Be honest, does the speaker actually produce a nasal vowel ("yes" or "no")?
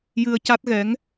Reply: no